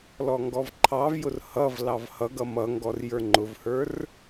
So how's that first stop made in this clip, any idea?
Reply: plain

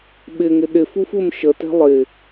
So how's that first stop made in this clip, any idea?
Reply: implosive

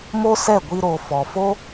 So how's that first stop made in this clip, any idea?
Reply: plain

